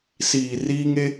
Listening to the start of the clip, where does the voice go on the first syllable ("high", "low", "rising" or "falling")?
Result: low